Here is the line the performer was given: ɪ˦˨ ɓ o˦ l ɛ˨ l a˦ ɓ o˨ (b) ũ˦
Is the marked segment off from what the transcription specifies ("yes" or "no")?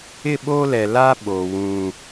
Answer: yes